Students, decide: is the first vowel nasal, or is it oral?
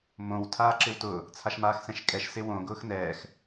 nasal